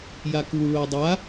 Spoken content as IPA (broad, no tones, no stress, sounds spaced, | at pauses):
j a k u ɭ o dˤ a